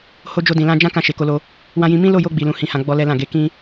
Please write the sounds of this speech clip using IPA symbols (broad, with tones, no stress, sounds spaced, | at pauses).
h o˧ d͡ʒ o˧ d ĩ˨ l ã˧ d͡ʒ ã˦ k ã˧ ʃ e˨ k o˧ l o˧ | w ã˧ j ĩ˧ m ĩ˦ l o˦˨ j o˧ ɡ͡b i˨ l ũ˨ h ĩ˨ h ã˨ ɡ͡b ɔ˧ l ɛ˦ l ã˦˨ ɡ e˧ k ĩ˦